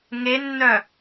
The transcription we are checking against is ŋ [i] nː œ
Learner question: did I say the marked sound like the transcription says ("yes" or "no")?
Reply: no